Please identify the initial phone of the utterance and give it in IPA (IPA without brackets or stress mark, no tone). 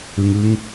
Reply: ɯ